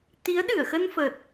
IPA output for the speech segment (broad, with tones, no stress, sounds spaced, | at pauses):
t̪ i˨˦ ə̯ ɗ ɨ˧˩ ə̯ x ə˧ n f əː˨˩ t̚